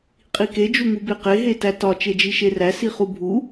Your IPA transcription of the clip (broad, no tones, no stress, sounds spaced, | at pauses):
qʼ i k e d͡ʒ u ŋ u b e q e ɦ e t æ t ɒ t͡ʃ e d͡ʒ i ʃ e r æ s i χ u bʱ u